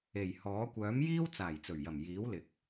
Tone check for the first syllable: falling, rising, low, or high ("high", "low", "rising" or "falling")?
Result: low